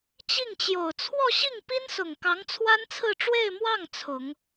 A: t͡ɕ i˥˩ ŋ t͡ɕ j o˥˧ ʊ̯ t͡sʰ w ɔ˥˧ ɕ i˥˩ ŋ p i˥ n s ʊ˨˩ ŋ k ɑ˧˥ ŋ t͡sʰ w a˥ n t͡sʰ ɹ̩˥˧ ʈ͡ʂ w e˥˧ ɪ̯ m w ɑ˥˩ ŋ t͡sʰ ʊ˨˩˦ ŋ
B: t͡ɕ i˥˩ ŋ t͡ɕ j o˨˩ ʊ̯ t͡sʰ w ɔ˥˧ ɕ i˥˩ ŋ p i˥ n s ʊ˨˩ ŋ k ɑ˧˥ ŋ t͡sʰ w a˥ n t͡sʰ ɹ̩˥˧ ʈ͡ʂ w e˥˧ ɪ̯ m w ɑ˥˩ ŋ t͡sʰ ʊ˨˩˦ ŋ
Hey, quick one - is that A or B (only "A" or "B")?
B